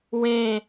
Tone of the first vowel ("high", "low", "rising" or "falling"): low